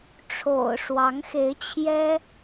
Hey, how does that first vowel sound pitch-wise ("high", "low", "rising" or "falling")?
low